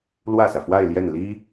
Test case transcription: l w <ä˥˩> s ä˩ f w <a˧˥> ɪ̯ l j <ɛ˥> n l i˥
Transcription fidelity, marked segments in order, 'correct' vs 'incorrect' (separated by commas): correct, incorrect, incorrect